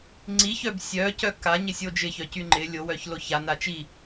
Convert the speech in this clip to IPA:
ŋ͡ǀiçœb sʲœcœ kaɲɪsʲo d͡ʒɪçœcy ŋ͡ǃɪ lʲowœçlo çana t͡ʃi

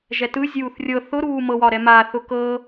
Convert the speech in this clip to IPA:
ʒɛtɯzʲuːθ rʲɤ θʊɾuː mɤwɒ ɾɛmaːθʊ kɤ

